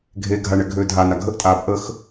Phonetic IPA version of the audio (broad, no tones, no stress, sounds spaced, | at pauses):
ɡʱ e ɡʱ a ɳ ɛ ɡʱ øː dʱ a n a ɡʱ ə ʔ tʼ aː b ʔ ə x